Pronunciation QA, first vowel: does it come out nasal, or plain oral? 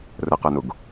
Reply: oral